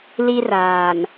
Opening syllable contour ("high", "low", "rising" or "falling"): high